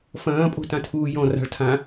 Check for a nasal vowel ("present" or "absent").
present